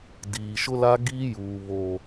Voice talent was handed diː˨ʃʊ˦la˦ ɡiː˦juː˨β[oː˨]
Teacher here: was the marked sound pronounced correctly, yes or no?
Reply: yes